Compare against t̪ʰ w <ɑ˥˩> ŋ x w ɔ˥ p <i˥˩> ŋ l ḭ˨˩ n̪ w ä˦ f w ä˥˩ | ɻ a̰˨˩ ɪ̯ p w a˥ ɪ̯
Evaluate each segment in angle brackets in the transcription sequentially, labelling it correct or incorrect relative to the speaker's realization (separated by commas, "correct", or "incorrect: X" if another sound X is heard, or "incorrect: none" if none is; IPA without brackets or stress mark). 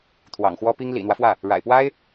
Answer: incorrect: ɑ̰˨˩, incorrect: i˥